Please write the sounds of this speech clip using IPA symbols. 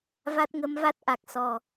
v a˦˥ t̚ ŋ ə˧˥ m v a˦˥ t̚ ʔ a˨˩ k̚ s ɔ˨˩

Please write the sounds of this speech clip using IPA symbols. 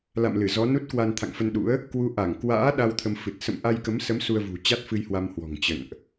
l a̰˧˨ m l ɨ˧˩ z ɔ˨˦ n u˦˥ t̚ k w a˧ n t̪ʰ a̰˧˨ ŋ f ə˧ n ɗ ṵ˧˥ ə̯ | k w u˧ ʔ a˧˩ ŋ k w a̰ː˧˥ ɗ a˧ w t̪ʰ ə˧ m f ɨ˨˩ t̚ s ə̰˧˨ m ʔ a˧ j k ə˨˦ m s ə˨˦ m s u˧ ə̯ v ṳ˨˩ t͡ɕ a˦˥ t̚ f ɨ˧ j h w a˧ m h w ɔ̤˨˩ ŋ t͡ɕ ə̰˧˨ n ʔ

